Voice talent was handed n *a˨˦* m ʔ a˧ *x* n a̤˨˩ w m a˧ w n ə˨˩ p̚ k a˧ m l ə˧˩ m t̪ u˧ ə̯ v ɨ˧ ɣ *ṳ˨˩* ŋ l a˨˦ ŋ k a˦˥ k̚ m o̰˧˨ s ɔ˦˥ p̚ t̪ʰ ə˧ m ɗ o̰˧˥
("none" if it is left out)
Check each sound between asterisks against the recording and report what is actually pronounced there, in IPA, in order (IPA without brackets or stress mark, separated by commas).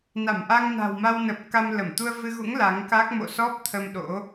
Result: a˧˩, ŋ, ṵ˧˥